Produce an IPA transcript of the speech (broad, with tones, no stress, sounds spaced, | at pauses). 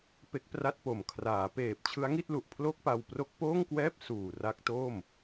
p e˦˥ k̚ p r a˥˩ t̚ p o˨˩ m kʰ r aː˩˦ p eː˨˩ p̚ t͡ɕʰ ɯ˦˥ a̯ ŋ i˥˩ t̚ l u˨˩ ʔ pʰ l o˥˩ k̚ p a˧ w p r o˦˥ k̚ p oː˥˩ ŋ k w ɛː˥˩ p̚ s uː˨˩ r a˦˥ k̚ t o˥˩ m